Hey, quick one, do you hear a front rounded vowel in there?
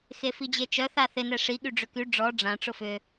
yes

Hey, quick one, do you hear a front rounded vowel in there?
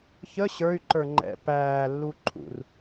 yes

